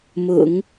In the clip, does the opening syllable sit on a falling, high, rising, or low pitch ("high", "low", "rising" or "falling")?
low